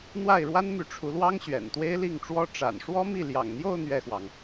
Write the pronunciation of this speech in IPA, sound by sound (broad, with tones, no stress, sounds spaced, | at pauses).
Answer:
n̪ w a˥˩ ɪ̯ ɻ w a˥ n m y˧˥ ʈ͡ʂʰ u˧˥ l w ɑ˥ ŋ ɕ ɥ ɛ̰˨˩ n t̪ w e˥ ɪ̯ l i˥˩ ŋ ʈ͡ʂ w ɔ˥ ʈ͡ʂ a̰˨˩ n ʂ w ɔ˥ m i˥˩ l j ɑ̰˨˩ ŋ n̪ j o˥˧ ʊ̯ n̪ ɥ ɛ˥˩ x w ɑ˩ ŋ